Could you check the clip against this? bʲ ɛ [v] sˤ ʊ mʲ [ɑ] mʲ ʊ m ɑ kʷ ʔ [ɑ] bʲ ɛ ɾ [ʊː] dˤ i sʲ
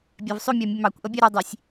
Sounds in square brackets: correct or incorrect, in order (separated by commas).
correct, correct, incorrect, incorrect